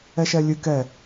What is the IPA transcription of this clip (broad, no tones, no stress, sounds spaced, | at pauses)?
ɛ ʃ ɛ lʲ ɨ k ɛ